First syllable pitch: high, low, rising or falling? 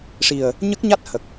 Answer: low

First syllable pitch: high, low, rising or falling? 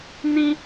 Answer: high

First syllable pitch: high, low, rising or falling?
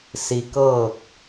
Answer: low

